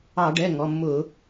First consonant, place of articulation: retroflex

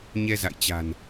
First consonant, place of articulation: palatal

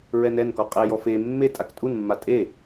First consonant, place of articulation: alveolar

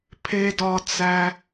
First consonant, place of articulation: labial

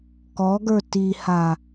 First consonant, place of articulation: velar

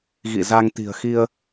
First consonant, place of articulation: velar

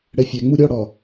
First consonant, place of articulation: retroflex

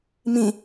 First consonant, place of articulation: labial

